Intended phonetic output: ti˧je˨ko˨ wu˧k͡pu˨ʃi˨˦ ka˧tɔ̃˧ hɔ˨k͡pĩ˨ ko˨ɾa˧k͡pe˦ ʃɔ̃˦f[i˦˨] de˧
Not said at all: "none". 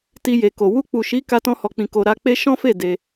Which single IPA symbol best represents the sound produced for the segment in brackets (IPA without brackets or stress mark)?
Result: e˦˨